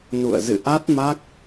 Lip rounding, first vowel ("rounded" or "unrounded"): rounded